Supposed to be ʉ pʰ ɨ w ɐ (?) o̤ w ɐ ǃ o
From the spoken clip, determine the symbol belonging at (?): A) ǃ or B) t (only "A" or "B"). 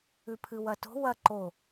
B